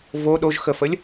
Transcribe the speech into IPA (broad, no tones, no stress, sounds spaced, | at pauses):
v o ɗ o ʒ x ə f ə lʲ